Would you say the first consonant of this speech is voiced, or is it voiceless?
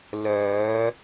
voiced